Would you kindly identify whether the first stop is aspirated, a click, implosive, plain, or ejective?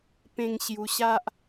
plain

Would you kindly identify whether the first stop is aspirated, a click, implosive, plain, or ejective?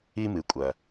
ejective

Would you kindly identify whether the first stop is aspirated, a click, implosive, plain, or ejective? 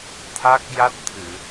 aspirated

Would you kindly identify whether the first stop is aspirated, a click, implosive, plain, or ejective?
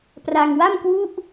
plain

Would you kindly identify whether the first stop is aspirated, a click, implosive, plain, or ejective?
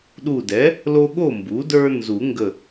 implosive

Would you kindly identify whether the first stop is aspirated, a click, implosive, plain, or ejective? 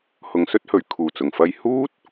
plain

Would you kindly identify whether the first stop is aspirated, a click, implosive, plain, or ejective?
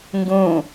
plain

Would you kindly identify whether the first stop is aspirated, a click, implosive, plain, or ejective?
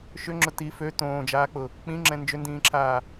click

